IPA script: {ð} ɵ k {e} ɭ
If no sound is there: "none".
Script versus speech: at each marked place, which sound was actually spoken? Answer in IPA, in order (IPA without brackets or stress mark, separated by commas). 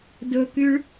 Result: d, y